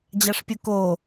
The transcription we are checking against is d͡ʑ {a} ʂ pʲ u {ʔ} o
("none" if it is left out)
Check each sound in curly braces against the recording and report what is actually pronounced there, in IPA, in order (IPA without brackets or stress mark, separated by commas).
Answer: a, k